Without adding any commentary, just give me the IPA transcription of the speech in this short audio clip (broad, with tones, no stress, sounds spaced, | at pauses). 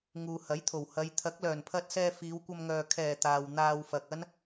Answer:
ŋ uː˨ h ɐ˨˥ j t̪ʰ o˨˩ w h ɐ˨˧ j t̪ʰ ɐ˨˥ k̚ l œː˨˩ n pʰ ɐ˧ t̚ s ɛː˧ f iː˨˧ w kʷ ɐ˧ m ŋ œː˨ kʰ ɛː˨˩ t̪ aː˨ w n̪ aː˧ w f ɐ˨ k̚ ɐ˥ n